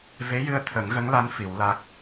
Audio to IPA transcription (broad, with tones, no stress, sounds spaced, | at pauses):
v e˧˥ j ɨ˧ ə̯ t̪ʰ ə˨˩˦ ŋ ɣ ə˧˥ ŋ l a˧˥ n f i˨˩˦ w l a˦˥ k̚